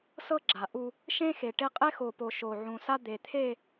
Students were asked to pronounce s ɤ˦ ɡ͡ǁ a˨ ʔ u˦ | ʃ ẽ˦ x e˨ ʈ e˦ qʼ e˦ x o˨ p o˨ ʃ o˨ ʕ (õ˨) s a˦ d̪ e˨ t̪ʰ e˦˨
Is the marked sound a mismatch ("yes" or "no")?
yes